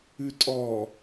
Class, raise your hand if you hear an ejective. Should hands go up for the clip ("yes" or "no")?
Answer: yes